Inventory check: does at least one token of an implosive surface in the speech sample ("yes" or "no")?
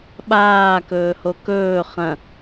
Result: yes